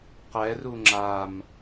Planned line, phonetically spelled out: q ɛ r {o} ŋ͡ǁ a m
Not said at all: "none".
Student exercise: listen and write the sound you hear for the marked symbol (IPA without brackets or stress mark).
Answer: u